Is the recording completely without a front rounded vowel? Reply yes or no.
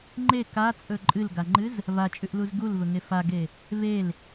yes